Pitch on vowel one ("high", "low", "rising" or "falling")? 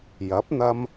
rising